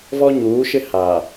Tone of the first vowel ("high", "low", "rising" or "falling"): high